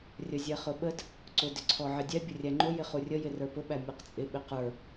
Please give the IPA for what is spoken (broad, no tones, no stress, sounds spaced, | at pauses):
rʲ ə zʲ ɛ χ ʊ ɓ ə d | ǀ ʊ d ɪ ǀʰ ɔ ʕ ɪ dʲ ɛ bʲ ʊ rʲ æ ŋ͡ǃ ʊ j ɪ χ u rʲ ə j ɪ r ə˞ p ʊ ɓ æ mʲ ɔ q t͡sʼ ɪ ɓ ɪ q ə˞